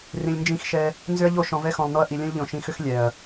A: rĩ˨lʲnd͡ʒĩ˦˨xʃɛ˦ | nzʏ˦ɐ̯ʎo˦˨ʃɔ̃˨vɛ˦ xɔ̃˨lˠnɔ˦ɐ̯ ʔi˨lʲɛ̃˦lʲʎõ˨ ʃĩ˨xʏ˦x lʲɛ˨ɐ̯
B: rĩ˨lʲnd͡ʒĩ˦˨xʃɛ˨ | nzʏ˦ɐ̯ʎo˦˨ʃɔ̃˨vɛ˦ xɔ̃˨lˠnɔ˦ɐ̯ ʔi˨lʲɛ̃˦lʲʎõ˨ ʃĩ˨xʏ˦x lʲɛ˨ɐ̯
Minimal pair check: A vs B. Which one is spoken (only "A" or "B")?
A